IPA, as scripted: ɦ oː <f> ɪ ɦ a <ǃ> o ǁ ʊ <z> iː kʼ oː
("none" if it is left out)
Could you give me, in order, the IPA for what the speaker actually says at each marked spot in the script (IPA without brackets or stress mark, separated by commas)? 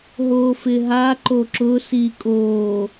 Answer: f, ǃ, s